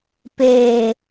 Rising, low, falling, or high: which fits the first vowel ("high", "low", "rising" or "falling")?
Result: low